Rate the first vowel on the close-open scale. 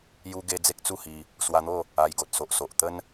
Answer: close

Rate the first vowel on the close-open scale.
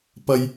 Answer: open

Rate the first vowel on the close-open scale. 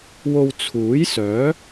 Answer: mid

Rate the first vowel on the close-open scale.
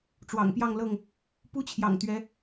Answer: open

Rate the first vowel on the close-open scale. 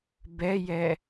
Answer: mid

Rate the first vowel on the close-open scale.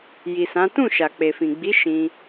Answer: close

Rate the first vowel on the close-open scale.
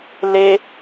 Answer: mid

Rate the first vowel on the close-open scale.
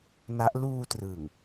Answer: open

